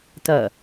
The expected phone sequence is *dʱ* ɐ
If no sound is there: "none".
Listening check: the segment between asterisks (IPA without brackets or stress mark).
t